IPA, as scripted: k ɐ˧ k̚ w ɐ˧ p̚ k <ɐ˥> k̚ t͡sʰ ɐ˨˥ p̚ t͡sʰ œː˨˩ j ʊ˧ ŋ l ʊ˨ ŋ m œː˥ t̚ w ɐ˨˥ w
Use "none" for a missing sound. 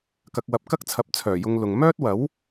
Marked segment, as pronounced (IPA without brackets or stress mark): ɐ˥